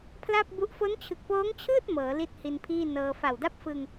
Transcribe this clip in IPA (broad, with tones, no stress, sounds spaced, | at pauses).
pʰ l a˥˩ p̚ b u˦˥ ʔ f o˦˥ n t͡ɕʰ ɯ˨˩ k̚ p oː˦˥ ŋ t͡ɕʰ ɯː˥˩ t̚ m ɤː˩˦ l i˥˩ t̚ h i˧ n pʰ iː˥˩ n ɤː˧ f a˨˩ w d a˥˩ p̚ f ɯ˧ ŋ